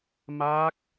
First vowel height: low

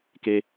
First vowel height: mid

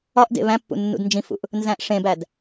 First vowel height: low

